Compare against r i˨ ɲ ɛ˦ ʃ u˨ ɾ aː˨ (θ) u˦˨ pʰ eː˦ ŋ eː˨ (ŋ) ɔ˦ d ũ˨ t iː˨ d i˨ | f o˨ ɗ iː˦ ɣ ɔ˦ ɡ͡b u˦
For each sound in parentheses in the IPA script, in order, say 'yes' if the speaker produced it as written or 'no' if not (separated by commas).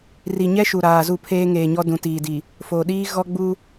no, no